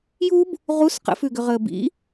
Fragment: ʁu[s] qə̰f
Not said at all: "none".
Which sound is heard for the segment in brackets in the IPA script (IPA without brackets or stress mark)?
s